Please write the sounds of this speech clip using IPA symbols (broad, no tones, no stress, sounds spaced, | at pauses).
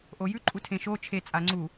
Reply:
ʔ o j ʉ ǃʼ u tʰ ẽ ʃ o t͡ʃʰ e t͡sʼ a ŋ͡ǀ u